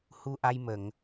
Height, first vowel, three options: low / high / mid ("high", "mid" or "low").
high